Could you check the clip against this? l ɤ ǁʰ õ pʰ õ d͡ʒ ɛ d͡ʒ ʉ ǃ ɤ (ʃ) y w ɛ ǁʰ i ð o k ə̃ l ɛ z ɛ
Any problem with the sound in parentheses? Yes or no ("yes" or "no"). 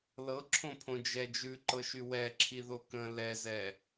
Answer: no